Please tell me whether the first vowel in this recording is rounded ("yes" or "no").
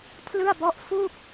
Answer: no